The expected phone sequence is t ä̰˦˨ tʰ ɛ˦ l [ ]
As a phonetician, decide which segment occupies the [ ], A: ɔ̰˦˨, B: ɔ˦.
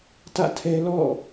A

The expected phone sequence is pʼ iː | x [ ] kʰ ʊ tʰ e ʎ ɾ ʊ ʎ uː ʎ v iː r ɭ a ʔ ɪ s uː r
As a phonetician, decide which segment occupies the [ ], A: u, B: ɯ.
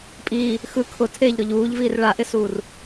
B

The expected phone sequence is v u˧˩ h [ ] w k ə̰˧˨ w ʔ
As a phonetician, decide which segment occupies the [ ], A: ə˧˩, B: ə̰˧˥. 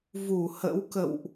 B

